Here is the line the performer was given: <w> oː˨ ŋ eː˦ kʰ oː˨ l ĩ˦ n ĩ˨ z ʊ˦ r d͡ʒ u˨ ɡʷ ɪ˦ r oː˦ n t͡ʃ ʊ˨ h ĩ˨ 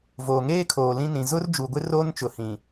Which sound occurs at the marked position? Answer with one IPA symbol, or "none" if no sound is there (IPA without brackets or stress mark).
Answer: v